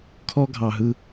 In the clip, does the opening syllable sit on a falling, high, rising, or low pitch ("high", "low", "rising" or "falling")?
high